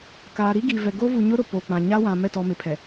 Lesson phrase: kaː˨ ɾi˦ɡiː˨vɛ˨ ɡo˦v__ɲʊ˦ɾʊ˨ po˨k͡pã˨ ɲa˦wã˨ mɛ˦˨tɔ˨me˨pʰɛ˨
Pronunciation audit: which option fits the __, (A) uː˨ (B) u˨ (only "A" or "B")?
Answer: B